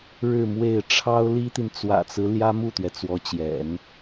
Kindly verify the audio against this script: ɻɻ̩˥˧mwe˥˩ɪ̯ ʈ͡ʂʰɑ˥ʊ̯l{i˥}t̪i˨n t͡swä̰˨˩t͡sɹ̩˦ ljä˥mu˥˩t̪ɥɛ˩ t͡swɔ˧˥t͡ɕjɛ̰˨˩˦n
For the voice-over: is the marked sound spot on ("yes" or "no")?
yes